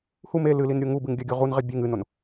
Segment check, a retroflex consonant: absent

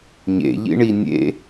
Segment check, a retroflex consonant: present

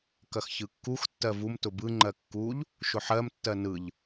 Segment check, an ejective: absent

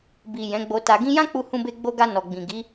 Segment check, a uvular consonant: absent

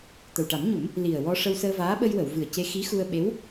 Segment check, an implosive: present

